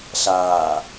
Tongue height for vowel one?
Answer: low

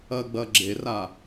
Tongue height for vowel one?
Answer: low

